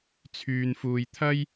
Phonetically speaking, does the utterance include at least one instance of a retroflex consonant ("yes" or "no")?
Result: no